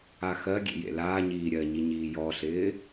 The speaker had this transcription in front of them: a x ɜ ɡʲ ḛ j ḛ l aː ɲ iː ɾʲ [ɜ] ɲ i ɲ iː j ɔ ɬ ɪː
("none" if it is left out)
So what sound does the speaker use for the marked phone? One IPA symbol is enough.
ɜ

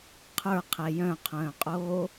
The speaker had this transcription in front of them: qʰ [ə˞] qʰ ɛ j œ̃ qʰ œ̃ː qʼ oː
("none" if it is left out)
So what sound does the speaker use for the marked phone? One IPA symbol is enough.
ə˞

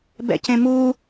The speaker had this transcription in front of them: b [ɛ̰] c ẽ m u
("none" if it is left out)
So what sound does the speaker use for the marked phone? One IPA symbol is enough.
ɛ̰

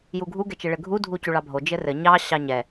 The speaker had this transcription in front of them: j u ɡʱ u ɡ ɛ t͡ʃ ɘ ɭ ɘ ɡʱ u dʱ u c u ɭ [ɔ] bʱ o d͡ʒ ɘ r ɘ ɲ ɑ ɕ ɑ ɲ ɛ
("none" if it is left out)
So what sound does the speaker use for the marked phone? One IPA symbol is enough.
ɑ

